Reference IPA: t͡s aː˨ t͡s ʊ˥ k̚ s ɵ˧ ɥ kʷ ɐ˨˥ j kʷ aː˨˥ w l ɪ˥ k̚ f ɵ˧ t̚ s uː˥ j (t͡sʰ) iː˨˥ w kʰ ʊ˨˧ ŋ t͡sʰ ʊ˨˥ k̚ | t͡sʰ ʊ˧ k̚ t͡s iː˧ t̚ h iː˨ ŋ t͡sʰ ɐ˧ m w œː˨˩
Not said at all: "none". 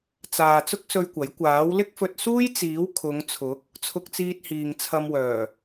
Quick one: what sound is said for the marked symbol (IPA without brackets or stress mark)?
t͡s